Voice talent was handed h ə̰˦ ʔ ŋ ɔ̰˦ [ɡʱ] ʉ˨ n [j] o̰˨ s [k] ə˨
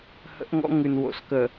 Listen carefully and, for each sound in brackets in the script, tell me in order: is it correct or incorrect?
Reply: incorrect, incorrect, correct

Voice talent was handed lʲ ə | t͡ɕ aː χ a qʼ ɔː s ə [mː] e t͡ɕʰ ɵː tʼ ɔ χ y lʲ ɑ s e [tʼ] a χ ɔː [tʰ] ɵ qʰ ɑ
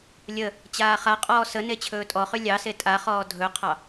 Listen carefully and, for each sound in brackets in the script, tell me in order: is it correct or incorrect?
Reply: incorrect, correct, incorrect

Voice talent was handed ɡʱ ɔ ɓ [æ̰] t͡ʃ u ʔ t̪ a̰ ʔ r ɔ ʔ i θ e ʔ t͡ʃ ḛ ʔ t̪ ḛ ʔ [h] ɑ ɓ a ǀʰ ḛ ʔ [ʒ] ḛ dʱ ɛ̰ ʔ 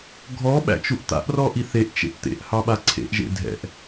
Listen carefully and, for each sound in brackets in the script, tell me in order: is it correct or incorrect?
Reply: correct, correct, correct

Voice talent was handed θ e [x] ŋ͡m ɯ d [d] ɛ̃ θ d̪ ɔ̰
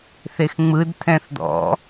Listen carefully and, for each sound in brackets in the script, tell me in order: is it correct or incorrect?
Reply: correct, incorrect

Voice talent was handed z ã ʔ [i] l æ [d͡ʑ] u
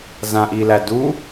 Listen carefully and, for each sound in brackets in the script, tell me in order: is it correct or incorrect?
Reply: correct, incorrect

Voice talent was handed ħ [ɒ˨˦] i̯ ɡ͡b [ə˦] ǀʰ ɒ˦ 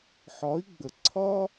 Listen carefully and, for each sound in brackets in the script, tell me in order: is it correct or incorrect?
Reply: correct, incorrect

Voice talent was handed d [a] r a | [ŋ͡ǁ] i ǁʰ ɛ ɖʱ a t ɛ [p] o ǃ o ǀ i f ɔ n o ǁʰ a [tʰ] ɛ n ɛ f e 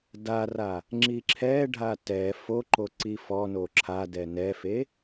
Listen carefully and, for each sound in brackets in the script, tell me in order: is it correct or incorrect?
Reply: correct, correct, incorrect, incorrect

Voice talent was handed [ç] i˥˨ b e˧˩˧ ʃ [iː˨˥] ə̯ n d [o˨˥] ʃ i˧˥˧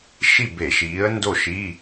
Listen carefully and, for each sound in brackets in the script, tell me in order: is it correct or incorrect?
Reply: incorrect, correct, incorrect

